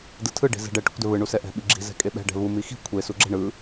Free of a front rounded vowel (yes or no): yes